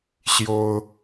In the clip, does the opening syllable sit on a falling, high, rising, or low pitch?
high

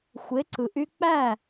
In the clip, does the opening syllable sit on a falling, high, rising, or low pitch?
rising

